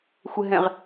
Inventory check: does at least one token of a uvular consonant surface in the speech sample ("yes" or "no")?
yes